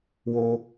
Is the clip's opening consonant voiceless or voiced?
voiced